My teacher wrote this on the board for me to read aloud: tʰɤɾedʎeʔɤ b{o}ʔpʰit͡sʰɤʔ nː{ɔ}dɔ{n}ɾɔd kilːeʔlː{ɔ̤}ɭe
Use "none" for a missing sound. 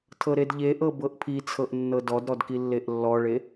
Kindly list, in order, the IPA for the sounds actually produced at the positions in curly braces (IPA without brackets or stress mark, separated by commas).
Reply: ɤ, ɤ, d, ɔ